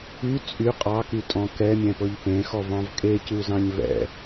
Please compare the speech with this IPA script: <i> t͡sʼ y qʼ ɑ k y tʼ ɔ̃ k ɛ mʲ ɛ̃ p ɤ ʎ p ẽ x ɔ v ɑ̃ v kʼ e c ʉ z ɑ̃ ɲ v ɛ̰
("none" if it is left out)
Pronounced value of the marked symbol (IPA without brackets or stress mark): y